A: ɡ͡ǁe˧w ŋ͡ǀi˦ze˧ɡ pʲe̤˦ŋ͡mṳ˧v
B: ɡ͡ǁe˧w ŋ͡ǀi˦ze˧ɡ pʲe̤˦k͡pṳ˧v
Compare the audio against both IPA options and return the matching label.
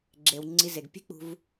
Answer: B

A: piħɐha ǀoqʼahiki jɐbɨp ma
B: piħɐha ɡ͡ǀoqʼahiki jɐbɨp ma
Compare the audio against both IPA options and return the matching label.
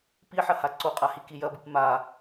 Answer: A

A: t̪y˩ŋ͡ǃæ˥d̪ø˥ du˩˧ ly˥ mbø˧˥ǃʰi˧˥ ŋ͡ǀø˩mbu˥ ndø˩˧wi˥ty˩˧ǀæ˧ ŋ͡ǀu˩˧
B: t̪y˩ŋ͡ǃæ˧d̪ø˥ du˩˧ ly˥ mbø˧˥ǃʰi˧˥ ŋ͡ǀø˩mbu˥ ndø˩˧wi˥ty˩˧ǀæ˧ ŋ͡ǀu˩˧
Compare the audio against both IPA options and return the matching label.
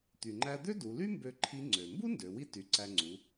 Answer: B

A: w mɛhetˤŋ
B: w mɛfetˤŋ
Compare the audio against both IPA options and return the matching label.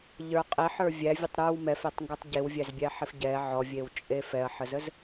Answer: B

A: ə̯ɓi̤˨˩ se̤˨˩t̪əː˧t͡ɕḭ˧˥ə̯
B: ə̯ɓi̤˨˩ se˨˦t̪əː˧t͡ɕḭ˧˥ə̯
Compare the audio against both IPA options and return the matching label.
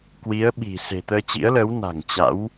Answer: A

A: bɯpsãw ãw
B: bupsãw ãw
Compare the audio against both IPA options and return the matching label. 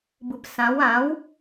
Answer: A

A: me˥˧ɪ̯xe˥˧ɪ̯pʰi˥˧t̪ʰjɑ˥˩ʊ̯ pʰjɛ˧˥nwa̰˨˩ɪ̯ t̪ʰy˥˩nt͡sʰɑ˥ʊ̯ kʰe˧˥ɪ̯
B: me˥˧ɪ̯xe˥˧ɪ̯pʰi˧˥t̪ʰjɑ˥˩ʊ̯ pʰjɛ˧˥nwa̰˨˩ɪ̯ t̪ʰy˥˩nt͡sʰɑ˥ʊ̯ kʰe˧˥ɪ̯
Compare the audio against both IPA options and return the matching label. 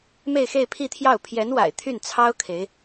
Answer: A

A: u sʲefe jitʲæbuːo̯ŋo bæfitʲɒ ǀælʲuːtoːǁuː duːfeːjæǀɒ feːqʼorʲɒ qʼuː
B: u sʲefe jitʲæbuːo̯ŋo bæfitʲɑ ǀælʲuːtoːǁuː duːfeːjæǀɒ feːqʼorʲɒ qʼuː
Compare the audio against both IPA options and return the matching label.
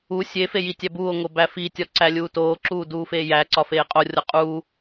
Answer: A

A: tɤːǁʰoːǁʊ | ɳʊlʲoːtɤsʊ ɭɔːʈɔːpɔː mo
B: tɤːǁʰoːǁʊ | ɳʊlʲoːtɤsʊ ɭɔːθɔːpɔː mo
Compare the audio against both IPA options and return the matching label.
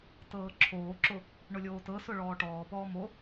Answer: A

